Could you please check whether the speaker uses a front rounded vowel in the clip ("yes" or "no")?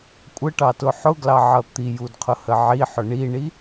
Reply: no